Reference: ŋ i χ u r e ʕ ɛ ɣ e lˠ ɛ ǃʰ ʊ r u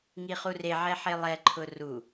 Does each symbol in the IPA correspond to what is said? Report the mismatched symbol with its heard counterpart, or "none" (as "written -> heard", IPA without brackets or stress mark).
ɣ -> ħ